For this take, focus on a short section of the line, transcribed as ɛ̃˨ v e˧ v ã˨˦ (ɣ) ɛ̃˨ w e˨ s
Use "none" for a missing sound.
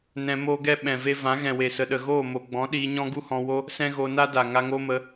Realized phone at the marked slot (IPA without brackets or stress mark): ɣ